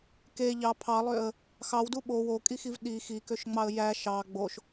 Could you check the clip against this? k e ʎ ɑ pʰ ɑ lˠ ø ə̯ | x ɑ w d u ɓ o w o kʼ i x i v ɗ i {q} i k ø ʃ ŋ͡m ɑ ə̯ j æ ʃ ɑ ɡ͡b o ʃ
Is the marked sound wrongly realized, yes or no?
yes